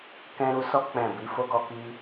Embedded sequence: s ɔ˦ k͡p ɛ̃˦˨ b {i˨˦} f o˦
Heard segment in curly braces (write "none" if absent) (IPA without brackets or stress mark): i˨˦